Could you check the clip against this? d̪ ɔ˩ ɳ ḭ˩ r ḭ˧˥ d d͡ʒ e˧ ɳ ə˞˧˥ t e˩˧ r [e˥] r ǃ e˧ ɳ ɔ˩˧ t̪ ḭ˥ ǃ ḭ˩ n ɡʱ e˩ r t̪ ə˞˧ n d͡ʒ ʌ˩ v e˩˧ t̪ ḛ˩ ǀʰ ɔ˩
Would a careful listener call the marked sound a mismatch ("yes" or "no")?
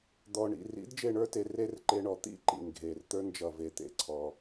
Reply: no